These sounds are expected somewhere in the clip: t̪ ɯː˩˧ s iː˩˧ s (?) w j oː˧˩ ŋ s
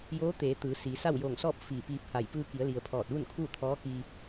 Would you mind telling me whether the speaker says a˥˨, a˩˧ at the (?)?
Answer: a˥˨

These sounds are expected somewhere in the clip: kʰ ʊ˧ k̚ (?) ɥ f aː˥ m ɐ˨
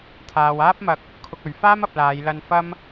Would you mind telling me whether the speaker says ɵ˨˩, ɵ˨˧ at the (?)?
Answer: ɵ˨˧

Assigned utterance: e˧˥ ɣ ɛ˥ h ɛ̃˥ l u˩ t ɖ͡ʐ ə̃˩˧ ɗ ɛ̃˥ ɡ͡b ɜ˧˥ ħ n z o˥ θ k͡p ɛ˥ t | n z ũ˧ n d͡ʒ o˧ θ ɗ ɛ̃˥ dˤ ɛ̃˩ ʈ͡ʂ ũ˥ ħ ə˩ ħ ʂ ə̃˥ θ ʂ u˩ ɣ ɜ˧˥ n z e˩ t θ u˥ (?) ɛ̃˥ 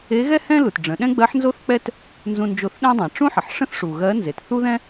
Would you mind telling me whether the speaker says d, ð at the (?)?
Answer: ð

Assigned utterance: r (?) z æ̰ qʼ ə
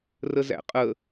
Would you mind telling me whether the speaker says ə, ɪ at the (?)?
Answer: ə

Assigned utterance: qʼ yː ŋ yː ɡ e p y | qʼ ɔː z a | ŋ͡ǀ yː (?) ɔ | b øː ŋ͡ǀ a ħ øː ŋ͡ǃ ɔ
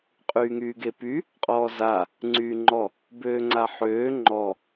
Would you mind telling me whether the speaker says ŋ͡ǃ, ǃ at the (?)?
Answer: ŋ͡ǃ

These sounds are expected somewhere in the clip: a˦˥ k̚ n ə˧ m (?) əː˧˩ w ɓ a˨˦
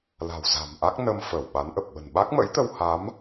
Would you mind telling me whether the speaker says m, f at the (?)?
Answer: f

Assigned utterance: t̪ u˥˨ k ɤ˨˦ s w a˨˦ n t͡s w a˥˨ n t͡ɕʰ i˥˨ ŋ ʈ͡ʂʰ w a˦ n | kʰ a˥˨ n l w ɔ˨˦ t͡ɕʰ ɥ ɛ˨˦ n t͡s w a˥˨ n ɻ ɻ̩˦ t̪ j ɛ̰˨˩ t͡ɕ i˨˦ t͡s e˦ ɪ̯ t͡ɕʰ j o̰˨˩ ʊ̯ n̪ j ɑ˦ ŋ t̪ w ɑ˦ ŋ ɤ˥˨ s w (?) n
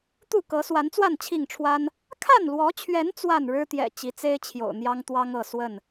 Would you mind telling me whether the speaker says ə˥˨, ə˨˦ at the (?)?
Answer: ə˥˨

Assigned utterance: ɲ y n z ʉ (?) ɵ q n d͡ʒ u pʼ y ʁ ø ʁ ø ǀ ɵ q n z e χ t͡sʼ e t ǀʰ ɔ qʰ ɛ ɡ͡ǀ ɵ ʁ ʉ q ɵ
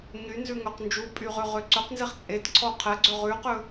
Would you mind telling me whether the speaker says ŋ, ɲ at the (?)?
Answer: ŋ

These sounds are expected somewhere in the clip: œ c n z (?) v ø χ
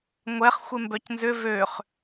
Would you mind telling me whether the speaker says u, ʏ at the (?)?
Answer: ʏ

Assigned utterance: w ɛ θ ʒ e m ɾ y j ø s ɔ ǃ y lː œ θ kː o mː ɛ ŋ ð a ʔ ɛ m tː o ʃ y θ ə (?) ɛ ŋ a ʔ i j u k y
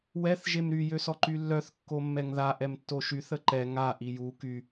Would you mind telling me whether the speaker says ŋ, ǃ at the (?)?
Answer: ǃ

